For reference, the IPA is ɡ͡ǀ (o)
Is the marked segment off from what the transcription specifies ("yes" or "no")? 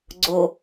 no